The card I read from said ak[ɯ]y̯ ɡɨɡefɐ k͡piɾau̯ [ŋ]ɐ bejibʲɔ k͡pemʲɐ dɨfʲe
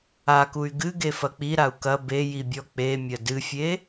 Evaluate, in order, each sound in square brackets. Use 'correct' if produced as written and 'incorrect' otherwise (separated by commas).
incorrect, incorrect